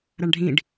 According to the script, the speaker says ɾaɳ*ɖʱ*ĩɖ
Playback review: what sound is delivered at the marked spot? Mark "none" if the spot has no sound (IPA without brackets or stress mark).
ɖʱ